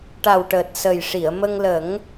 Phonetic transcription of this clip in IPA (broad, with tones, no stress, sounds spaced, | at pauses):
ʈ a˨˩ w ʈ əː˨˩ t̚ s ə˨˩ j ʂ i˨˩˨ ə̯ m ə˧ ŋ l ə˨˩˦ ŋ